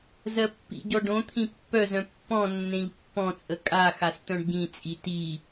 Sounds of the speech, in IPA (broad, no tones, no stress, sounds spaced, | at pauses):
z ɜ pː ḭ ɟ ɔ ɖ õ t̪ʰ ĩ pː œ z œ̃ pː ɔ̃ nː ẽ ʎ pː ɔ̃ t͡sʼ ə kʼ a x a s t̪ œ̃ ɖ ɟ ĩ t͡sʼ i t i